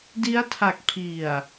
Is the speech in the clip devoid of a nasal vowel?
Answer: yes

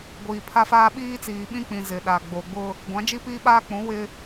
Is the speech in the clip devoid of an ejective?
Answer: yes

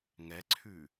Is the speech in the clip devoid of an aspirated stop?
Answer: no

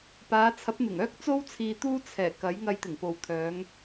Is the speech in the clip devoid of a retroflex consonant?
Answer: yes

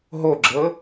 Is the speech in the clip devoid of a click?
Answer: no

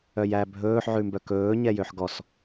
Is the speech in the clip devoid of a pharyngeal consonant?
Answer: no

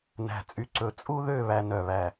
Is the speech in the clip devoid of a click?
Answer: no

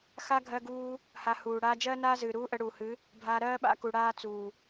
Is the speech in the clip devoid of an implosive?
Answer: no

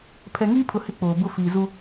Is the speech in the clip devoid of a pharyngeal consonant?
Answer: yes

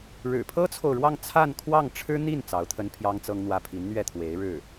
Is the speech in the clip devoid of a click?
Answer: yes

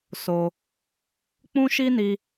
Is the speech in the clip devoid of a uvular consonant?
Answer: yes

